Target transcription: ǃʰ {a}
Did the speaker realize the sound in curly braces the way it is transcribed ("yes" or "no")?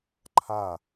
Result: yes